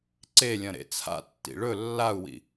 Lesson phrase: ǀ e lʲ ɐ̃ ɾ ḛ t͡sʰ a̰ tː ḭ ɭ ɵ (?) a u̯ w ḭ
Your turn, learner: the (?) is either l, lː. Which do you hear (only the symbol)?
lː